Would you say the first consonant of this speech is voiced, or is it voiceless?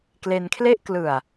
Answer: voiceless